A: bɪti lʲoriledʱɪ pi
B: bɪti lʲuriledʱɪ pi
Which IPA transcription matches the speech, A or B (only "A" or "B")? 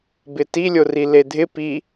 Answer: A